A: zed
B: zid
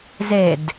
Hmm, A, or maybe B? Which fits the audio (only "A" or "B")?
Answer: A